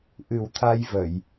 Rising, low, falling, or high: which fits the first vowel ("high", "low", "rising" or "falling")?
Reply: low